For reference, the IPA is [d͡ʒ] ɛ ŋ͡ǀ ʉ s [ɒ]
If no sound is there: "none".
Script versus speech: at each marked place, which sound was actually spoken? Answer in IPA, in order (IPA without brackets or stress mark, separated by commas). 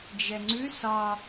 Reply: d͡ʒ, ɒ